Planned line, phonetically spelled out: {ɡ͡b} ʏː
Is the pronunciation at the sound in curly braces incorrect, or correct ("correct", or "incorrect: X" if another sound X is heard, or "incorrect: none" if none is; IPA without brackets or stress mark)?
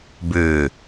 incorrect: b